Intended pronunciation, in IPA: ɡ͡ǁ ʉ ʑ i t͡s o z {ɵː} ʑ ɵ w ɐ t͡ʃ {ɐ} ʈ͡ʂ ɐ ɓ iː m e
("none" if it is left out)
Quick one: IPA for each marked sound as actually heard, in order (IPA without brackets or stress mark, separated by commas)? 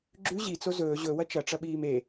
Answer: ɵː, ɐ